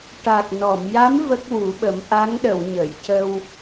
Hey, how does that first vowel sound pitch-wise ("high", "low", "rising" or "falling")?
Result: low